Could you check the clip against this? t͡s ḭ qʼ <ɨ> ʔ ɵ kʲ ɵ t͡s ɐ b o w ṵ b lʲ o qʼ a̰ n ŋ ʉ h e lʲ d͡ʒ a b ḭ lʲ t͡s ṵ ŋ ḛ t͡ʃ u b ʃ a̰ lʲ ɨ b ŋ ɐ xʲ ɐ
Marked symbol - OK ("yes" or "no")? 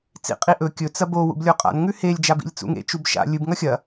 no